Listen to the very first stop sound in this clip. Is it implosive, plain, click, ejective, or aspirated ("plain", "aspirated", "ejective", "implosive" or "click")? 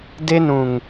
plain